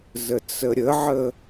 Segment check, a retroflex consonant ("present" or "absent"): absent